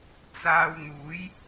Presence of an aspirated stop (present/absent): absent